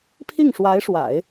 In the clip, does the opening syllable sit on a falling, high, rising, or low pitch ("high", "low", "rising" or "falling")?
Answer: falling